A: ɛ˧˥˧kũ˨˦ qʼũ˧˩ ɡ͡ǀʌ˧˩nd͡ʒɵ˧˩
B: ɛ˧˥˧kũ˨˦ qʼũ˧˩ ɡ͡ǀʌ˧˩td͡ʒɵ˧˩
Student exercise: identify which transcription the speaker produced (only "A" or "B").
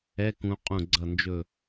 A